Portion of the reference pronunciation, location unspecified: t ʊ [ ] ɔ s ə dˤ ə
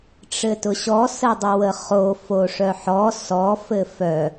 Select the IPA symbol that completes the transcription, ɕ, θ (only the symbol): ɕ